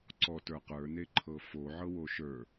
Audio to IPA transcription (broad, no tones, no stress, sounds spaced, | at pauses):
ǀ ɔ t ə˞ q ə˞ n e ǃʰ ɤ f o ʕ ɤ w o ʃ ə˞